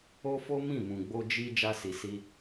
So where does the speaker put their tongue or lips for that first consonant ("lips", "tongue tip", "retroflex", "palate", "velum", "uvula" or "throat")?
lips